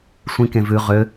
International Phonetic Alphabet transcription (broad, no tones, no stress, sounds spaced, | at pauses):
sʷ ĩ k ẽ v ʉ ʁ ø